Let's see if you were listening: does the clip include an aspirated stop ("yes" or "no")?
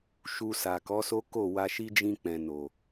no